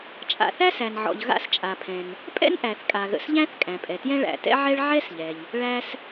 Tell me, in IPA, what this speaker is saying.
t͡ʃʼ a̰˩ θ æ˥ s æ˩ n ʕ ɔ̰˩ ʎ ɣ a̰˥ s t͡ʃʼ a˩ pʰ ɛ̃˩ n | pʼ ɛ̰˥ n ʔ æ˩ θ kʼ a˩ ɣ ə̰˩ s ʎ æ̃˥ θ kʼ æ̃˩ pʼ ɛ˩ t j ɛ̃˥ ɭ æ̰˩ t ɛ̰˥ ʕ ɛ˥ ɭ ʕ ɛ˥ s ʎ ɛ˩ ʎ | ɭ æ˥ s

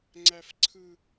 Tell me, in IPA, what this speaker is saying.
ŋ͡ǀ æ˦ f ǀʰ ɯ˦

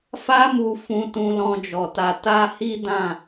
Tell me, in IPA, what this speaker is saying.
f a˧ m u˨ f ũ˨ t ũ˧ l ɔ̃˧ d͡ʒ ɔ˨ t a˧ t a˦ h i˦ d ã˦˨

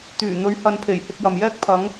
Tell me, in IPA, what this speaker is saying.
t̪ yː˨˩ n̪ ɵ˨˧ ɥ h ɐ˨ n pʰ e˨˩ j h ɪ˧ k̚ j ɐ˨ m j ɛː˥ k̚ pʰ ɐ˨˧ ŋ

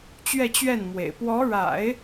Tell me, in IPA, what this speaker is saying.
t͡ɕ ɥ ɛ˥˧ t͡ɕ ɥ ɛ˥˩ n m w ḛ˨˩ ɪ̯ p w ɔ˧˥ ɻ a̰˨˩˦ ɪ̯

